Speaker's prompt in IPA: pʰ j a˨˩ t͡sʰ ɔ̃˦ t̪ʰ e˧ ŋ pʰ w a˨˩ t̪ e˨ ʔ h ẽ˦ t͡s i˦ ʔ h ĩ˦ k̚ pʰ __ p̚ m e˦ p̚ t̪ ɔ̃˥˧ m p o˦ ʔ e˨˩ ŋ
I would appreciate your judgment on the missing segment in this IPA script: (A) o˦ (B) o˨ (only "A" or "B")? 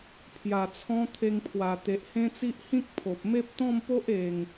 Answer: B